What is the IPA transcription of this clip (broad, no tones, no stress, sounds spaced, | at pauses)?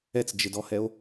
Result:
ɛ t͡s d͡ʒ ɪ d ɔ h ɛ o̯